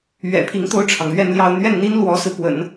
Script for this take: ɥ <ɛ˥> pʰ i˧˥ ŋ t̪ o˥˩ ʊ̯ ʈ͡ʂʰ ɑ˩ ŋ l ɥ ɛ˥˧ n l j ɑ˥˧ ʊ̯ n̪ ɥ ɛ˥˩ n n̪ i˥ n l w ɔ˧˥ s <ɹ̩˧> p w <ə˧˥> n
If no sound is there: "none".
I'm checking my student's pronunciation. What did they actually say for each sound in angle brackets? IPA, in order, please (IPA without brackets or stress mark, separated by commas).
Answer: ɛ̰˨˩, ɹ̩˧, ə̰˨˩˦